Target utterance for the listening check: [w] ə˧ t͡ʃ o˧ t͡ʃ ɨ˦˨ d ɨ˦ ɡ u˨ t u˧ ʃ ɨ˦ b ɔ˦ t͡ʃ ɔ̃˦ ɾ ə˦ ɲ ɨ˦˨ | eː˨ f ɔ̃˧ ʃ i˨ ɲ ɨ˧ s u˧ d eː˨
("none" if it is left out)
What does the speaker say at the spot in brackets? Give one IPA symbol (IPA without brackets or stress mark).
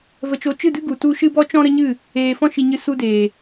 v